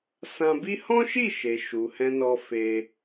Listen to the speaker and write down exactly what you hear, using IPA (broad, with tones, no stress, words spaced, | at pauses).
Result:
sã˧bi˦ hɔ̃˦ʃi˦˨ʃe˨ ʃu˨hɛ̃˧nɔ˧ fe˧